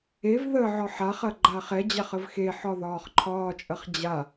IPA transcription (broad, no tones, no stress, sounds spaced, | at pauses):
e v ð ə ʕ ɒ ħ a χ ɐ ɡ͡ǃ a χ ɛ d͡ʑ a χ ə v x e ħ ɒ ð ɒː χ ǃʰ ɒː t͡ʃʼ ɐ χ d͡ʑ a